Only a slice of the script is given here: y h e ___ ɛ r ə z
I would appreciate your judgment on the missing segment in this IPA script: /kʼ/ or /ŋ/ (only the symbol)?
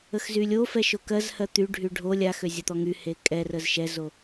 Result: kʼ